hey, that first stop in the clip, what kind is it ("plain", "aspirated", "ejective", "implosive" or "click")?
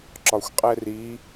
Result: click